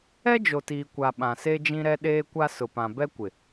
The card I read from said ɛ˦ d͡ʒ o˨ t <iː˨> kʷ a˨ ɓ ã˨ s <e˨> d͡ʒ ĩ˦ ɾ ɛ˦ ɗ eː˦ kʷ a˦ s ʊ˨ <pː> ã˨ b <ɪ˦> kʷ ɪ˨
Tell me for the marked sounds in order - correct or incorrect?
correct, incorrect, incorrect, incorrect

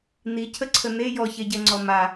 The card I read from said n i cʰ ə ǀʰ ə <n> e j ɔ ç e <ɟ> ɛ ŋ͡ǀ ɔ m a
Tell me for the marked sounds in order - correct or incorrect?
correct, correct

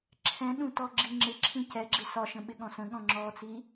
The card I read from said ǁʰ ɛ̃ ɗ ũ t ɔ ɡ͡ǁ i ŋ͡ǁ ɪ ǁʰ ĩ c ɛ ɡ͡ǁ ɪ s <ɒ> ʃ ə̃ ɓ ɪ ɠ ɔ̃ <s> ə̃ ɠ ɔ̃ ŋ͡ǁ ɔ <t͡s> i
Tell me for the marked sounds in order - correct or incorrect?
correct, correct, correct

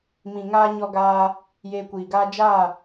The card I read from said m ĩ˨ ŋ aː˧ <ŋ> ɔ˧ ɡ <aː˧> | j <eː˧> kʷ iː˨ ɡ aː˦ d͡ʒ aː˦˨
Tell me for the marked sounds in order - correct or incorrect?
incorrect, correct, correct

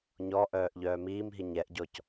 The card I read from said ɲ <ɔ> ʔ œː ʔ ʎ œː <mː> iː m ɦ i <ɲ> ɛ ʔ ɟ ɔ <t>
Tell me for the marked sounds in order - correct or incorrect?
correct, incorrect, correct, incorrect

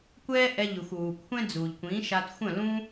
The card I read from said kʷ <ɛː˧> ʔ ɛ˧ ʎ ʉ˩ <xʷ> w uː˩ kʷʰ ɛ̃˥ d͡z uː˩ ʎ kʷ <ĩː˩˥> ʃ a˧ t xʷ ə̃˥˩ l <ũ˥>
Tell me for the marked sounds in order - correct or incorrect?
incorrect, correct, correct, correct

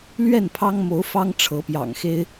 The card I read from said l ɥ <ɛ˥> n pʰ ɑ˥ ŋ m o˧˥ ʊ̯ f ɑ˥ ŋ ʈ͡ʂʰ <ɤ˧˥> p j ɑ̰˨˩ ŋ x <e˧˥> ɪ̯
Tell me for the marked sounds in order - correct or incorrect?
incorrect, correct, incorrect

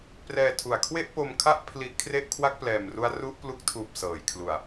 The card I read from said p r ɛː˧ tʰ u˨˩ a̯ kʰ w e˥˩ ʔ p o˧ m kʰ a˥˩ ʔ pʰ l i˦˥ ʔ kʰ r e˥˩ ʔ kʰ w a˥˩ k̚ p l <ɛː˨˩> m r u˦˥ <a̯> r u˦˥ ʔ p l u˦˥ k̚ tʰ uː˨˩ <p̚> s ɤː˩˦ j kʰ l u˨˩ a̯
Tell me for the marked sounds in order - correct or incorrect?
correct, correct, correct

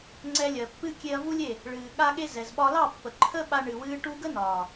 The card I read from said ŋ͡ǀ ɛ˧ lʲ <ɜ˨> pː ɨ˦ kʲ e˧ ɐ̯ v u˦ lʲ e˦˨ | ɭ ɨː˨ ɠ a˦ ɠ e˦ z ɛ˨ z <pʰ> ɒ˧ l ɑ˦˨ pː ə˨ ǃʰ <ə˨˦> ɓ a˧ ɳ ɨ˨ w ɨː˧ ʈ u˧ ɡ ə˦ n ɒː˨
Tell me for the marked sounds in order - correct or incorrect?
correct, incorrect, incorrect

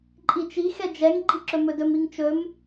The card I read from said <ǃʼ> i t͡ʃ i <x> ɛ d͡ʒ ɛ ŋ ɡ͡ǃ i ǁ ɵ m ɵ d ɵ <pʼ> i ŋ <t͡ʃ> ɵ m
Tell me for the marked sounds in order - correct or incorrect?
correct, correct, incorrect, correct

